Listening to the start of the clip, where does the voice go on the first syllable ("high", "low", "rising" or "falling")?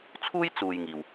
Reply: high